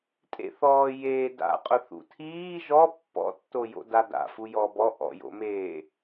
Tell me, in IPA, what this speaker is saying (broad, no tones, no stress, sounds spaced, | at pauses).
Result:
tʼ ḛ θ ɔː j eː d a̰ qʼ ʊ θ ṵ tʰ iː ʒ ɔ pː ɔ̰ tː o j o̰ d a d a̰ f u j ɔ b ɔ ʔ ɔ̰ j o̰ m eː